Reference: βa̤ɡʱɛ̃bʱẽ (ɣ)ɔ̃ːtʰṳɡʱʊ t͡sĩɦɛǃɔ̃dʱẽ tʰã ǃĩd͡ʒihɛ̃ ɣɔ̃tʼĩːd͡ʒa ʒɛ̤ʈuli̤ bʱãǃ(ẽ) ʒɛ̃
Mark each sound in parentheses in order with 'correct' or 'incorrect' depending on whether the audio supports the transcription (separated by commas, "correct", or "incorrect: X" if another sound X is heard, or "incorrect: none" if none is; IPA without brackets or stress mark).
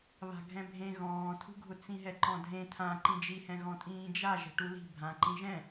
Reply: correct, incorrect: ĩ